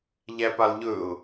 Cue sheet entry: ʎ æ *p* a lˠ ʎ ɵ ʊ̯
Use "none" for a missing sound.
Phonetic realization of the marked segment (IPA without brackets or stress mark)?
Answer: p